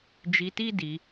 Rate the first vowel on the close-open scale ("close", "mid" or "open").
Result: close